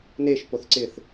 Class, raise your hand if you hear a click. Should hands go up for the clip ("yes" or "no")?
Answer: yes